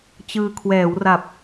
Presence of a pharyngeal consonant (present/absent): absent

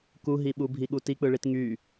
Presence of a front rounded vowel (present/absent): present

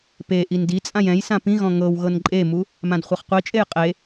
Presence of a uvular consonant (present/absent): present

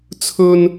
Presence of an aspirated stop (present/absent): present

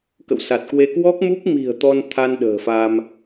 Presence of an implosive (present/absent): present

